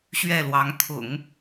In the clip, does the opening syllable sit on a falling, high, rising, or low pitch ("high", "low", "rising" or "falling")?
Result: falling